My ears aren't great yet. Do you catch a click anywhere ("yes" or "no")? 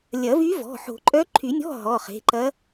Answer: yes